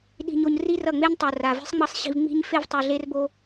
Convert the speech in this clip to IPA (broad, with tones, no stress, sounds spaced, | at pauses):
ɗ i̤˦ ɲ o˦ ɲ r i˦ r ʌ˦˨ ŋ͡m e˦ ɲ tˤ o˨ r a˨ v i̤˦ sˤ ŋ͡m ʌ˦ sˤ ɕ i̤˧ v ŋ͡m i̤˦ ɲ f e˦ v tˤ ɯ˨ ɮ e˦ r b o˧